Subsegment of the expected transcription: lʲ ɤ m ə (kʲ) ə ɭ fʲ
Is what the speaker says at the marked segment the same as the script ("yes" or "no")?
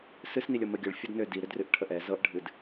no